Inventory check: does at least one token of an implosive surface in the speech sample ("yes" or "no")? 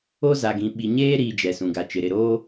yes